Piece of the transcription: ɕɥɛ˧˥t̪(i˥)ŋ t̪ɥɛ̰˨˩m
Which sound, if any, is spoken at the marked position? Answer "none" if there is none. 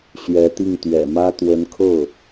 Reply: i˥˩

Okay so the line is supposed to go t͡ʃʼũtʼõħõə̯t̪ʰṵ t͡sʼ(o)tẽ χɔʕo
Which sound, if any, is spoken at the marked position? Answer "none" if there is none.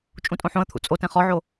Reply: o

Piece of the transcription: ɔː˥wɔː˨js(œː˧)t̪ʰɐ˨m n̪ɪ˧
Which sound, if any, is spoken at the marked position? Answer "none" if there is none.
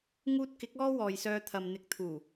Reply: œː˧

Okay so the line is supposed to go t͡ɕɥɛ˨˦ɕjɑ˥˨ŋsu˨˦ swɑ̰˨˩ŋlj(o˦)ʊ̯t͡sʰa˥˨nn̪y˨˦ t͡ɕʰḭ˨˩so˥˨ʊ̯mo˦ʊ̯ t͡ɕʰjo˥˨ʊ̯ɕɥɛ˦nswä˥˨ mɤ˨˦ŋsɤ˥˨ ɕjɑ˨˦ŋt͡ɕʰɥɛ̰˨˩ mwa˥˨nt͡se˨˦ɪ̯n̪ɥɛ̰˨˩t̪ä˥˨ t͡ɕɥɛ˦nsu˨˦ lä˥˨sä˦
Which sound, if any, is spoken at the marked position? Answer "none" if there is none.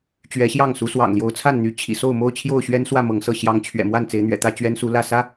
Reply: o˨˦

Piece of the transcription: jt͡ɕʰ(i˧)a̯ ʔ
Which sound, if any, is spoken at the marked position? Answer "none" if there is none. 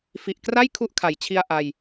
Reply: i˧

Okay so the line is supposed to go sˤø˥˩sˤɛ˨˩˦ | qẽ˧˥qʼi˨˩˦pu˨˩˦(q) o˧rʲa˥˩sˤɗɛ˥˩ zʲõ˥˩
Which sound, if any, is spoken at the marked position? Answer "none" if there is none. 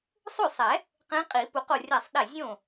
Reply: q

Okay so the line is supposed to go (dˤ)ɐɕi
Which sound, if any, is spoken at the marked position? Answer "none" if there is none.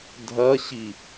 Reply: dʱ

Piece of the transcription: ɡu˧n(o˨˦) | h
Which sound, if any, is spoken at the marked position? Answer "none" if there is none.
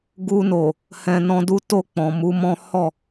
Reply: o˨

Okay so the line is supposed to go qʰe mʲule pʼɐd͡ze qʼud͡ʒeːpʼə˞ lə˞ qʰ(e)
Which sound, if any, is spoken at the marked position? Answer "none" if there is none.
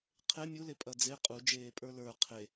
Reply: e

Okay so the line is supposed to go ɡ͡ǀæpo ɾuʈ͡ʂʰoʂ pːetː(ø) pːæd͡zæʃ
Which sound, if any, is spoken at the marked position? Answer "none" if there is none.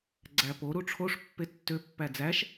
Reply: ø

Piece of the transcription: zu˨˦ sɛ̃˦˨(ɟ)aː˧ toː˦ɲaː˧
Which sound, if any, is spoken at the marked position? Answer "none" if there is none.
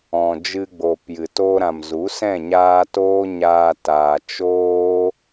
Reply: ɲ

